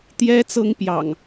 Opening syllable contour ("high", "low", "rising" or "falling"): high